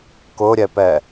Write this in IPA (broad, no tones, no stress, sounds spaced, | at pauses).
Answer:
k ʊ ɾʲ ɛ p ɛ